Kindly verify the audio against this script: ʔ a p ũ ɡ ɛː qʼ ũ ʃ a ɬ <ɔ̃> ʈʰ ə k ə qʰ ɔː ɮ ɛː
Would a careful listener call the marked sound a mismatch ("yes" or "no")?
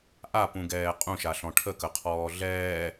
no